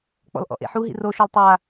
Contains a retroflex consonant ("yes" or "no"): no